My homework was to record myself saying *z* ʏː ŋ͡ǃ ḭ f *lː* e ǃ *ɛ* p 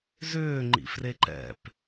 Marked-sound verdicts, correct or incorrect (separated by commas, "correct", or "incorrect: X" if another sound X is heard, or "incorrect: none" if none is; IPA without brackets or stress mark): correct, incorrect: r, incorrect: ɛ̰